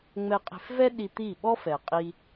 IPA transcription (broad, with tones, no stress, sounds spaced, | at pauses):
ŋ͡m ɛ˧ qʼ e̤˧ f v ɛ˦ ɗ i˧ t̪ i˦˨ ɓ ɔ˦ f ɛ˨ qʼ i˧